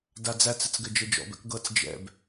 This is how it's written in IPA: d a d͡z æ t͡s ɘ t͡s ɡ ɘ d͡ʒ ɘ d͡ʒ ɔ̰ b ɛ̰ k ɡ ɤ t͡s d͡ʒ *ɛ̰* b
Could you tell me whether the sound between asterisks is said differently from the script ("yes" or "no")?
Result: no